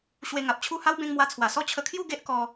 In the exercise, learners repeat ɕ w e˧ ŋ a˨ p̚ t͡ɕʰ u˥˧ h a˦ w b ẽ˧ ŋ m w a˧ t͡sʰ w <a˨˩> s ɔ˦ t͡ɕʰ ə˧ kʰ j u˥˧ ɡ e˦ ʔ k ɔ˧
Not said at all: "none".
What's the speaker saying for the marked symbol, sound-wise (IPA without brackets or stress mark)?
a˨˩